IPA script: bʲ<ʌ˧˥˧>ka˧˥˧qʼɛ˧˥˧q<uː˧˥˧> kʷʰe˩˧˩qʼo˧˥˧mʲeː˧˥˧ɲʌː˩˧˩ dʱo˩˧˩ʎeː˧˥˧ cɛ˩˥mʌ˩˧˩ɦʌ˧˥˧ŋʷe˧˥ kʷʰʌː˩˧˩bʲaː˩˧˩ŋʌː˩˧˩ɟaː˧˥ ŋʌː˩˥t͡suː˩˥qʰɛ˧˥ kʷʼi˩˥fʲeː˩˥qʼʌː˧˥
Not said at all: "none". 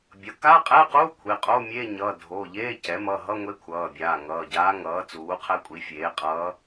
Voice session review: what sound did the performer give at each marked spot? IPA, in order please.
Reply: ʌ˩˥, uː˧˥˧

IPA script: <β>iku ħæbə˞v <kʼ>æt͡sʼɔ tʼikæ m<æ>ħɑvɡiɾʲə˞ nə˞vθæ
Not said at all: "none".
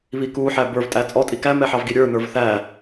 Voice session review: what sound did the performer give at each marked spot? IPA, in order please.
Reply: β, tʼ, ɛ

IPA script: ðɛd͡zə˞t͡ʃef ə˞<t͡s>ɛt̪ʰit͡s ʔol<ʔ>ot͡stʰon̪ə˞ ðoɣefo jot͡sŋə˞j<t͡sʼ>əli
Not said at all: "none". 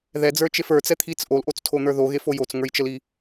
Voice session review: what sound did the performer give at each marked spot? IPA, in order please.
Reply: t͡s, ʔ, t͡ʃ

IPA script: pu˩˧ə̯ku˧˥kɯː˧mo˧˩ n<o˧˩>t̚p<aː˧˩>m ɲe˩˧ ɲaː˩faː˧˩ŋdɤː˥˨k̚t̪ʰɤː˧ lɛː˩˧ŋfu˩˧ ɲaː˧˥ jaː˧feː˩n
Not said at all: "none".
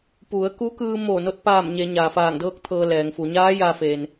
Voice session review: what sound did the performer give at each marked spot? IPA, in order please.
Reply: o˧, aː˧˩

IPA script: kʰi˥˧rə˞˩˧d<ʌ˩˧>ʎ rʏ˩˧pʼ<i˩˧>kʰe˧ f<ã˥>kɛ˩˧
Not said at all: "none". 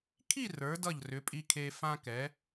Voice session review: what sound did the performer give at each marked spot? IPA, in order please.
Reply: ʌ˧˩, i˧, ã˧

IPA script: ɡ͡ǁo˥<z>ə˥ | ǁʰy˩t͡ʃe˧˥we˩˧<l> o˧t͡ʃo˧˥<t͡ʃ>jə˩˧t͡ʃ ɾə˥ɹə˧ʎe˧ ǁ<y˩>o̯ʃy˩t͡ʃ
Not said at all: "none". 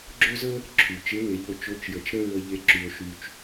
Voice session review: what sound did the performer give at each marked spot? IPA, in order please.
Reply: z, ʎ, t͡ʃ, y˩

